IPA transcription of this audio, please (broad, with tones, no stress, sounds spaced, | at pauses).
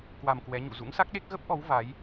k w a˧ m k w ɛ˨˦ ɲ ṵ˧˨ z ṵ˧˥ ŋ s a˦˥ k̚ ɗ e˦˥ k̚ ɣ ə˦˥ p̚ ʔ ɔ˨˦ w v a˨˦ j